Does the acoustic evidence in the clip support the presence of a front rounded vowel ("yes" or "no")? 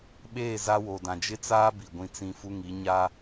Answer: no